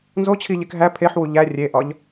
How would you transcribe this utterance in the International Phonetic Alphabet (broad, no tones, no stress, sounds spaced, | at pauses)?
n z o t͡ɕʰ i ʎ e k ɦ æ pʰ e ħ w u ʎ æ rʲ e ʔ ɒ ʎ